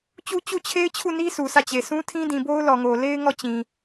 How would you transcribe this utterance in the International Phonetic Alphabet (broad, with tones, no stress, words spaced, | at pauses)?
t͡ɕu˦t͡ɕu˦˨t͡ɕʰe˦ɪ̯t͡ɕʰu˦˨ ni˦ su˨sä˦˨ t͡ɕe˨sũ˦ tʰĩ˦dĩ˨ bo˦ʊ̯lɔ˨ŋo˨ le˦ɪ̯ ŋɔ˦˨t͡ɕĩ˨